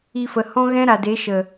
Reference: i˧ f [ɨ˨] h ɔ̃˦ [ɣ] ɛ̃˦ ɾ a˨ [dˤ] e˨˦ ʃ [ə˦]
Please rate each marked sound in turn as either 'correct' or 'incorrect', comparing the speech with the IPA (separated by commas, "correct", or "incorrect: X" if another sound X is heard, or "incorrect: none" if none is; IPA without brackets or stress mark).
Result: incorrect: ə˨, correct, incorrect: d, incorrect: ə˨